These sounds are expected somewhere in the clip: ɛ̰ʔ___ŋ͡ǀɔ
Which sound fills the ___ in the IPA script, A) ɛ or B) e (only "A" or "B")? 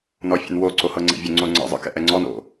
A